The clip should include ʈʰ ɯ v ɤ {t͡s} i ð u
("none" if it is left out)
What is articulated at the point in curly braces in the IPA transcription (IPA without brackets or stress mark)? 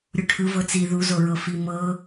t͡s